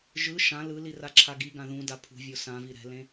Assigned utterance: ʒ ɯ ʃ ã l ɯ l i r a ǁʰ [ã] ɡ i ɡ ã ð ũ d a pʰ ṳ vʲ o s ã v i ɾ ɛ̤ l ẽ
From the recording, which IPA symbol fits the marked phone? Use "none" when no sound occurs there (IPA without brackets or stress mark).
a